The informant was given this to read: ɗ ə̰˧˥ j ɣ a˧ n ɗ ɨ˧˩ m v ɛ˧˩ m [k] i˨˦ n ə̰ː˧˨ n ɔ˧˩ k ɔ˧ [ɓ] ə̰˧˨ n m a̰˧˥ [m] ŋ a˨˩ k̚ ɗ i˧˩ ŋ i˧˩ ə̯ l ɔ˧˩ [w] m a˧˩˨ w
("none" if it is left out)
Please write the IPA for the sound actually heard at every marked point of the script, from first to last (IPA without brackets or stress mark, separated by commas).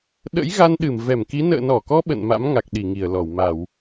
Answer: k, ɓ, m, w